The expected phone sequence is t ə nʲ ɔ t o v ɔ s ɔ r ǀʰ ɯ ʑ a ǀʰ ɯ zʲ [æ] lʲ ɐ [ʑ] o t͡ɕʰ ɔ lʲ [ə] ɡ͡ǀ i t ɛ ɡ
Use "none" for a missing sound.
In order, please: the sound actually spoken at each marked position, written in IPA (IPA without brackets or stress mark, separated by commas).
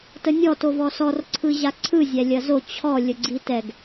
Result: æ, z, ə